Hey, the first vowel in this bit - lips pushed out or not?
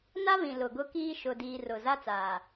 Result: no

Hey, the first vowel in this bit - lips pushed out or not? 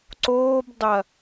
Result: yes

